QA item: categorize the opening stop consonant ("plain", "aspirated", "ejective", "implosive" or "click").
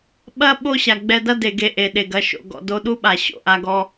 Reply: implosive